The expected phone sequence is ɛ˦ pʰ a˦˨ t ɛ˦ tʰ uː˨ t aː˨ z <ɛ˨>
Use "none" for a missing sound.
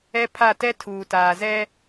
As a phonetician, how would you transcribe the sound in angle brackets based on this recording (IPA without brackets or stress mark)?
ɛ˦